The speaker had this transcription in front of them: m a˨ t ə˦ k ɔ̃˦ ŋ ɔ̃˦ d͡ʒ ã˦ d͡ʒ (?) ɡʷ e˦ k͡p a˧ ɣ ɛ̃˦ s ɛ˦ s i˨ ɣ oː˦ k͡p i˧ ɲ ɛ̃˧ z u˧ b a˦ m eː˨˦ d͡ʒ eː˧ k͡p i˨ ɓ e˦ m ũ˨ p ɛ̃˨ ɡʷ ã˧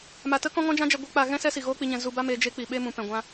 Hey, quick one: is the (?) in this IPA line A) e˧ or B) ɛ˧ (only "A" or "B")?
B